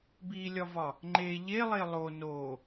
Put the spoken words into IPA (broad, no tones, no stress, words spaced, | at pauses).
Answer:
bilʲɒvɒ | ŋ͡ǃe ʎelˠe lˠo no